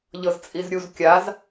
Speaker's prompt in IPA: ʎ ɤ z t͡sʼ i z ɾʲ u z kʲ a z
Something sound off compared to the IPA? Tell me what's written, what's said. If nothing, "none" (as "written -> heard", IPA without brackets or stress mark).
none